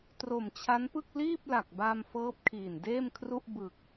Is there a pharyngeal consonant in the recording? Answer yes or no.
no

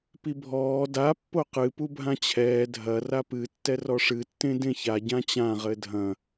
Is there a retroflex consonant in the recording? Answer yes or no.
yes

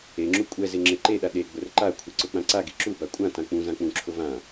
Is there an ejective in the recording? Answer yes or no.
yes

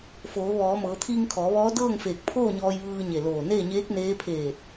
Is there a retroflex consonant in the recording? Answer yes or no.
no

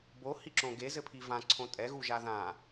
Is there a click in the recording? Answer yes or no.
yes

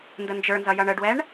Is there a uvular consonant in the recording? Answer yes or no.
no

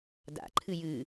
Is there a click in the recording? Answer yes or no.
yes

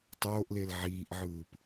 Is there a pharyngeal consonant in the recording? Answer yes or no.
yes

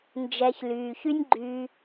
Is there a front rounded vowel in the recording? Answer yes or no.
yes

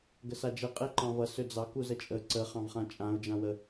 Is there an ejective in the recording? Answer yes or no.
yes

